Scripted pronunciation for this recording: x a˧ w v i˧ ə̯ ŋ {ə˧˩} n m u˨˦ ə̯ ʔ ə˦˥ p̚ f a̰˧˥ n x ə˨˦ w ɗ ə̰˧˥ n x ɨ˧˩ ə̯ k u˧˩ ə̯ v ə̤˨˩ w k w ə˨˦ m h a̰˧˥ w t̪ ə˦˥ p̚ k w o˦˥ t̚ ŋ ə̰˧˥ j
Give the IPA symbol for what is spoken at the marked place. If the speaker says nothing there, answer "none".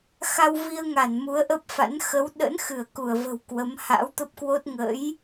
a˧˩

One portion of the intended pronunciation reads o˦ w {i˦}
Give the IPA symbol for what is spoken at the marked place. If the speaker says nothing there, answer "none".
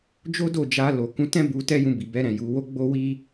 i˦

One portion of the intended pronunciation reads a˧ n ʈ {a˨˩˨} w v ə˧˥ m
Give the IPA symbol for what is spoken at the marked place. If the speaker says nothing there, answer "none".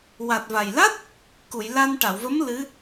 a˨˩˨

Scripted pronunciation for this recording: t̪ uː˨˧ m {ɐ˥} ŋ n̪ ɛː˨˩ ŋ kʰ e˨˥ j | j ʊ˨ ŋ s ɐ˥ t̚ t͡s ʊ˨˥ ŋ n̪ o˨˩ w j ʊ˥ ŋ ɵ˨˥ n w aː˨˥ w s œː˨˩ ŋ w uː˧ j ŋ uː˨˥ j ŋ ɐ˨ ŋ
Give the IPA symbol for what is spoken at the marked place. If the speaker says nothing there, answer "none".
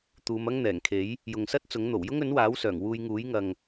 ɐ˥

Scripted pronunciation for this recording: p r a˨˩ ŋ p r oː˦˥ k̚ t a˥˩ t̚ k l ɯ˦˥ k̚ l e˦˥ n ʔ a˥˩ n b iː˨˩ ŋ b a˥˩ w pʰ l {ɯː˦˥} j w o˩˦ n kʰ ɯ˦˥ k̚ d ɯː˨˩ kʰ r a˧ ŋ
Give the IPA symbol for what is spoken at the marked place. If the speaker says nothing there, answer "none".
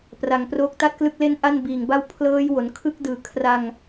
ɤː˦˥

